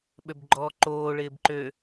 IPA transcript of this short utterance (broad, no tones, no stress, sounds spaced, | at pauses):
ɓ ø b ɡ͡ǃ ɔː ǃ oː ɭ ɪː b ǃ ø